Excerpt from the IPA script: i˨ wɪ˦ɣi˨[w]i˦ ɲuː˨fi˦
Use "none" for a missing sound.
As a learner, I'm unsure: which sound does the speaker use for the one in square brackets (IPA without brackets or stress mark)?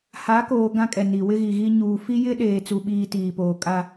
ɣ